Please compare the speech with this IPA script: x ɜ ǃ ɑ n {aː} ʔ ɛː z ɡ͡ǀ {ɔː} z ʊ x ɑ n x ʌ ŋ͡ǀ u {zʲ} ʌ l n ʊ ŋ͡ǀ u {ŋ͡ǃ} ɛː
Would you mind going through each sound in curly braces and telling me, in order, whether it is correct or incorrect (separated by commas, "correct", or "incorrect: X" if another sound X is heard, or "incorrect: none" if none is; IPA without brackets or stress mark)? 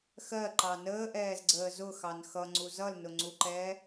incorrect: əː, incorrect: əː, incorrect: z, incorrect: ǃ